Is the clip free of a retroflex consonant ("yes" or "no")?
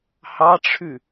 no